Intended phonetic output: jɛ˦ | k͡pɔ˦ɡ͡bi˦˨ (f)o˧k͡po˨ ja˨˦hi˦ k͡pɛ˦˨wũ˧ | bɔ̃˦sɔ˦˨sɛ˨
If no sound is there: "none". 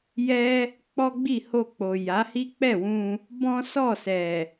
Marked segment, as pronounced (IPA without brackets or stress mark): h